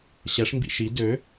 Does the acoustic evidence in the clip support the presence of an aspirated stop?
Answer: no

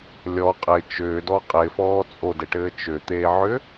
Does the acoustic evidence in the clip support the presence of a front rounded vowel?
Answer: yes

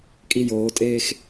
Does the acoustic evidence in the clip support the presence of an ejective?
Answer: yes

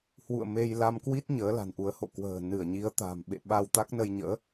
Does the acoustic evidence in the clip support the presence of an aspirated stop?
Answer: no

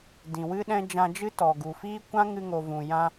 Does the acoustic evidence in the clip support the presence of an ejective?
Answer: no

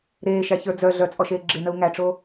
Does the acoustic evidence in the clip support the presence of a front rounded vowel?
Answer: yes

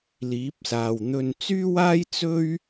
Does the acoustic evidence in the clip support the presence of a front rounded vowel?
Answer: yes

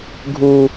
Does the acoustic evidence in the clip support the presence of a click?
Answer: no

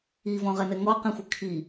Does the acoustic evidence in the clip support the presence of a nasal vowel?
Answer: yes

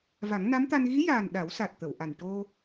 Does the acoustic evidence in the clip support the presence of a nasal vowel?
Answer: no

